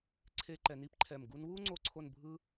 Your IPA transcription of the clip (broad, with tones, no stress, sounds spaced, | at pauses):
ǀʰ e˥ ǃ ɛ˧ n i˥ p ǃʰ ɛ˧˩ m ɡ u˥ n w u˥ ŋ͡ǀ o˥ ǀʰ o˥˧ n bʱ ɯ˥